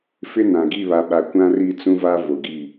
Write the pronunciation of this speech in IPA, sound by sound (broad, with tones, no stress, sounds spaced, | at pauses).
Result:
f ɪ˦ n ã˨ ɡ i˦˨ β a˨ ɓ a˨ kʷ ã˦ r i˦˨ t͡s ũ˦ v a˦ v o˨ ɡ i˦˨